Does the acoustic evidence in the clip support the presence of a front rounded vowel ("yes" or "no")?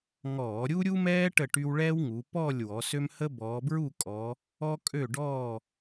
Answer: yes